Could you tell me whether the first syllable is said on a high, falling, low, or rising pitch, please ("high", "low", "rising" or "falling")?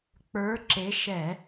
rising